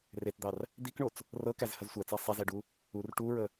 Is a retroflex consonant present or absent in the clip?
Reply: present